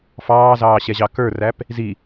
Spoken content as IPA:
f ɑː z ɑː ɕ ɛ ʑ ɑ k ə˞ r æ p | z i

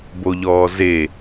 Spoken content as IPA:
b o ʎ ɔː z e

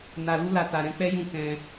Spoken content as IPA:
n a˨ l u˧ l a˨ t a˨ ɾ ɛ̃˧ k͡p ɛ˦ j ũ˦˨ k ɛ̃˧

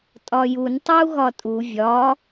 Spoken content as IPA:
tʼ ɒ j u n tˤ e u̯ ɣ ɒ tʼ u vʲ ɒ

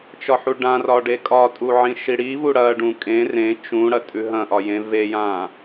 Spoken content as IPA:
t͡ʃ ɒ ħ u ɖ ã r ɒ ɖ e kʼ ɒ tʼ u ʕ ĩ ʃ i ɽ i v u ɽ ɐ ɖ ũ kʼ ẽ r ẽ t͡ʃ ũ ɽ ɐ tʼ ʉ ɦ ɐ̃ ʔ ɒ j ẽ v e j ã

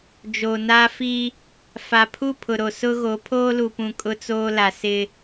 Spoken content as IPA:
d͡ʒ o˨ n aː˦ f i˦ | f a˨ pʰ u˦˨ pʰ ʊ˨ ɾ o˨ s ʊ˦ ɣ o˨˦ pʰ oː˦ l u˨ p ũ˨ kʼ ʊ˦ t͡s oː˦ l a˨ s ɪ˦

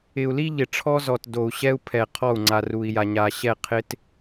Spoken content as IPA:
ɪ˨ u̯ l i˦ ʎ ɪ˨ ʈ͡ʂʰ ɔ˦ z ɔ˨ t d o˨ u̯ ɕ ɛ˦ u̯ pʰ ɛ˨ qʰ ɔ˦˨ u̯ ŋ͡ǀ a˨ r u˨ i̯ j a˨ ɲ a˨ ɕ ɛ˦˨ qʰ ɪ˦ t

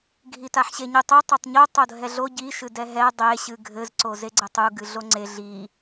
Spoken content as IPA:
ɡʱ i t a ħ ɕ e ɲ ɨ tˤ i tˤ a tˤ ɲ o tˤ o dʱ ɛ ɮ o ɟ i ʃ ɨ d ɛ ɦ ɛ dˤ e ɕ ɨ ɡʱ ɘ z ǀ o z e ɡ͡ǀ ɘ tˤ u ɡ ɨ ɮ o ŋ͡ǀ e ɮ i

